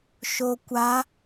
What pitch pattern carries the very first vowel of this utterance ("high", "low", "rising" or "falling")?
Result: low